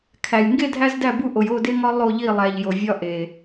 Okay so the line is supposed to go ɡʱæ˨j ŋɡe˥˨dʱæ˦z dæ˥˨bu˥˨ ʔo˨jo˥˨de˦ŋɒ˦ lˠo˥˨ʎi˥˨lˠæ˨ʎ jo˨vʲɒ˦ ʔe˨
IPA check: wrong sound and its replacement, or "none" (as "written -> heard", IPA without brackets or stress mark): ɡʱ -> kʰ